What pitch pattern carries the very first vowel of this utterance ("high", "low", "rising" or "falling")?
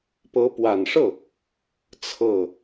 rising